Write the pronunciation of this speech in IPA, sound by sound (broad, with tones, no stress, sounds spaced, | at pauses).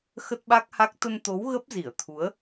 x ə˦˥ t̚ ɓ a˦˥ k̚ h a˦˥ k̚ t̪ ə˧ n t̪ o˨˦ w ɣ ə˦˥ p̚ z i˧˩ ə̯ t̪ʰ u˨˦ ə̯